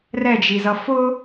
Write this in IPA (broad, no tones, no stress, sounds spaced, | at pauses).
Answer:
r ɛ d͡ʒ i z ʌ f ʊ